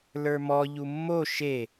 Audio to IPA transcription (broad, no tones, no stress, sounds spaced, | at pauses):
l ə˞ m ɔ ʎ u mː o ʃ e